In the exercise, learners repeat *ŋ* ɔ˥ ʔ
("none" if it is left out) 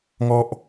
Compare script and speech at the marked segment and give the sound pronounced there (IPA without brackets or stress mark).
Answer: ŋ